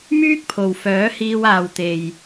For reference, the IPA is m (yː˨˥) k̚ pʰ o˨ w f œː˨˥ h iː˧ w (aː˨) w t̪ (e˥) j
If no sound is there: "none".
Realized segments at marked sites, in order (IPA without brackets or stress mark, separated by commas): yː˥, aː˨, e˨